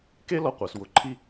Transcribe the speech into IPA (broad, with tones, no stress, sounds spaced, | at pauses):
k e˥ l ɔ˧ qʷ a˩˧ s w ʊ˧ ǃʰ i˥